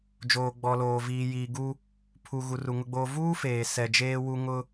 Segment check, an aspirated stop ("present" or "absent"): present